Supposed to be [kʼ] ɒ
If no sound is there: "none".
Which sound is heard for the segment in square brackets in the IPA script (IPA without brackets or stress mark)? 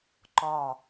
ǃ